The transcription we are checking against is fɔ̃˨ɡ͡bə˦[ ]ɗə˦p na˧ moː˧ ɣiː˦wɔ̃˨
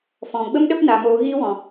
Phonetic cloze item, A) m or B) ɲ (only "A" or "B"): A